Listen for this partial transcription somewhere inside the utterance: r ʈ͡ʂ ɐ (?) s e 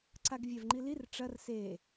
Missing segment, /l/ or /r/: r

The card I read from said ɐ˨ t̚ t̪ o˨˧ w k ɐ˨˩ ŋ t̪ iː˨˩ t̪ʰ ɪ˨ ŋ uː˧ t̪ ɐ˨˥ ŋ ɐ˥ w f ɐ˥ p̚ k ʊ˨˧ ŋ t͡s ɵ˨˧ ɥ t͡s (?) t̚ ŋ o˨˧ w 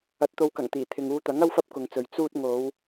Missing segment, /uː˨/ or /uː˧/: uː˧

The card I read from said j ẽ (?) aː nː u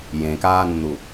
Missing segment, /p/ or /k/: k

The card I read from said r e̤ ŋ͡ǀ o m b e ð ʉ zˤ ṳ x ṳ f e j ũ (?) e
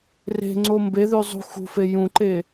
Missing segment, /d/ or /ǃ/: ǃ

